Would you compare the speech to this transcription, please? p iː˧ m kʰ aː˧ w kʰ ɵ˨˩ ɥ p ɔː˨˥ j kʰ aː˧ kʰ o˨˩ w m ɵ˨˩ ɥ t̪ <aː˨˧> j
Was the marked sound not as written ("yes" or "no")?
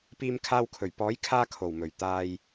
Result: yes